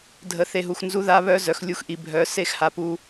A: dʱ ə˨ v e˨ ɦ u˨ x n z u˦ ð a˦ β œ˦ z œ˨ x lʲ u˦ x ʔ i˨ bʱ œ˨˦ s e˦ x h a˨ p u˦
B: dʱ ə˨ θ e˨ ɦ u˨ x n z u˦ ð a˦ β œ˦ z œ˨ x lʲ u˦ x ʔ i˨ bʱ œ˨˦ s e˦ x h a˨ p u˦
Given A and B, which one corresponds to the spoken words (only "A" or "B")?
B